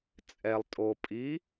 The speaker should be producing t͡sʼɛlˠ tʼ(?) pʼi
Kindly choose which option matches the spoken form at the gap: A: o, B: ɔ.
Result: A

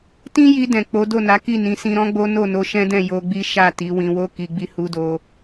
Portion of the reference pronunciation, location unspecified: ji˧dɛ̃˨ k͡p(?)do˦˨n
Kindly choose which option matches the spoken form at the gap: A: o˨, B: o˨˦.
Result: B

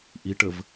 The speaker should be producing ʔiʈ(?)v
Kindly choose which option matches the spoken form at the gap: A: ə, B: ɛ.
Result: A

